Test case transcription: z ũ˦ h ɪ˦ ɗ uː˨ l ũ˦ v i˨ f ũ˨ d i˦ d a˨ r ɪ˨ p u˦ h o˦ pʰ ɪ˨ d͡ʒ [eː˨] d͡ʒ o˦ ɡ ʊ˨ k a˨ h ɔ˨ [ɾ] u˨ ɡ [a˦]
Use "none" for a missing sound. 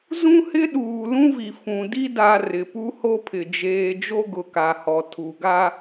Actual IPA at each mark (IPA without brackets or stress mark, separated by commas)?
eː˨, tʰ, a˦